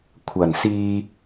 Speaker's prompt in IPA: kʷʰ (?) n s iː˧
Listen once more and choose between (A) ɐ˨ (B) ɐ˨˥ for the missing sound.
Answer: A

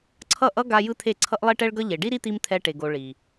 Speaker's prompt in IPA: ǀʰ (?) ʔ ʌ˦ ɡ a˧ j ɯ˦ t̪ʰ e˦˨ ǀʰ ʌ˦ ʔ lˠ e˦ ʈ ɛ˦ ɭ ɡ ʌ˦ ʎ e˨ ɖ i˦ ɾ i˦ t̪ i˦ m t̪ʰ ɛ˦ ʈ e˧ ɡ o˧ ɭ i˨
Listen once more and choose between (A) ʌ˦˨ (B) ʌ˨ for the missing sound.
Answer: A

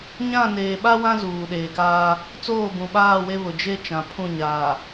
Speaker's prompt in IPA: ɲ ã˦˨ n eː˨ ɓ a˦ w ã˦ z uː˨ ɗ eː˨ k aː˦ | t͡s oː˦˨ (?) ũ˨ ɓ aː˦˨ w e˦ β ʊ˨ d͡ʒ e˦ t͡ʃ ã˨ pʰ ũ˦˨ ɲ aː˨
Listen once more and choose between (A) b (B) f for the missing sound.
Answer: A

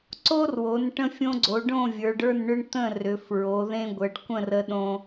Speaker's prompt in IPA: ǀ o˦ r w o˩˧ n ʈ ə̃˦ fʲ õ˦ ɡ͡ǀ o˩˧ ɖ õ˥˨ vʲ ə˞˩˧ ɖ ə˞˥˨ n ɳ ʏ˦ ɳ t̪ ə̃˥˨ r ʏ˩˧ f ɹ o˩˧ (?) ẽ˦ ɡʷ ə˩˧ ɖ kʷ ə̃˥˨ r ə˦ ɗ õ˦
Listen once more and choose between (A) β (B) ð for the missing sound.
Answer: B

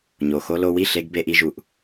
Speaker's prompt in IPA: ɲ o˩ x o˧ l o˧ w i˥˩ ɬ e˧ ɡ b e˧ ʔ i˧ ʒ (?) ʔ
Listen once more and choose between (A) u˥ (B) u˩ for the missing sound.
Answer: B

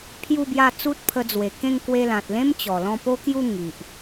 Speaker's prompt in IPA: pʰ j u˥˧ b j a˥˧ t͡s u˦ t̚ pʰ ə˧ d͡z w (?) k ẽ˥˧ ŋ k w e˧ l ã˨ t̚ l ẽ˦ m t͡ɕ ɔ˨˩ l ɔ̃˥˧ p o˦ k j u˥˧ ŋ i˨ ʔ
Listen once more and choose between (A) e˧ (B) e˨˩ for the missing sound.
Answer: B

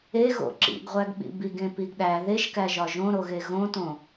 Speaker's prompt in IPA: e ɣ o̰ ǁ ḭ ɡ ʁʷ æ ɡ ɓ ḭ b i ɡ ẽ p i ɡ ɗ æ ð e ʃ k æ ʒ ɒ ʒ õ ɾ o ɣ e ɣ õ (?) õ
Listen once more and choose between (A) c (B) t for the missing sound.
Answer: B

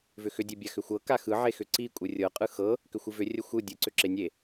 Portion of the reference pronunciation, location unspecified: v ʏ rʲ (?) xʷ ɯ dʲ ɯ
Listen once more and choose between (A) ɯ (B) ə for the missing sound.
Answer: B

